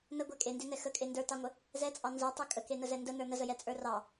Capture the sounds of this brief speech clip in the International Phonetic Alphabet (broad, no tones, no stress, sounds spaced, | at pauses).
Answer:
n ə ɡʷ ɛ kʼ e n d e n ɛ x ə kʼ e n d ə˞ t ɑ ŋʷ ə | z ɛ t͡sʼ ɑ n z ə˞ tˤ e kʼ ə k e n ə z ɛ n d ə n ə˞ n ə z ə j ɛ t͡sʼ ə˞ r ɑ